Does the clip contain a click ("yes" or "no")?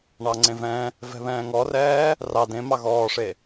yes